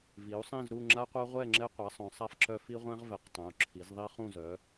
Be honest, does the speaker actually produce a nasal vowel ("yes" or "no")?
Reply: yes